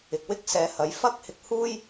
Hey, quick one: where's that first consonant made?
velum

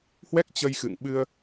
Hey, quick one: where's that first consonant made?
throat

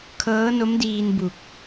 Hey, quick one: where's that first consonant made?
velum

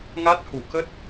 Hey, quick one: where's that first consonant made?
velum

